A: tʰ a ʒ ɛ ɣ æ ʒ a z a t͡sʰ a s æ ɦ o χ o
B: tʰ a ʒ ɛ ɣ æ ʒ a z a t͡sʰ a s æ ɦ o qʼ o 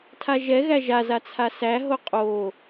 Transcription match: B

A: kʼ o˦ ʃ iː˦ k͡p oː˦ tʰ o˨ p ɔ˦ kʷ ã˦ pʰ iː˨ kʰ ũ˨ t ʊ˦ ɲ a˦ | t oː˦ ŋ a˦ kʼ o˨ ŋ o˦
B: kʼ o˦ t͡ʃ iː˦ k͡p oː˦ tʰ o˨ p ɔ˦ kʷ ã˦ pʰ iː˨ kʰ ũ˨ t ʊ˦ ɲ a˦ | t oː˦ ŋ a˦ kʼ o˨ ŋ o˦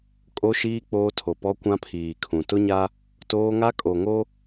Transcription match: A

